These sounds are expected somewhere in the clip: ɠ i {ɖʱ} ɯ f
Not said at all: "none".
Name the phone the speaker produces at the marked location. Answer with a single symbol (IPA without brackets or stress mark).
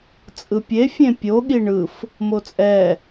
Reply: ɳ